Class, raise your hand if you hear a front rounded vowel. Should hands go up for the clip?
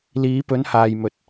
no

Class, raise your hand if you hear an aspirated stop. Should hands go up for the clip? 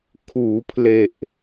yes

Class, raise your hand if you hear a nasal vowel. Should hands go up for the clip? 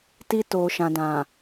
yes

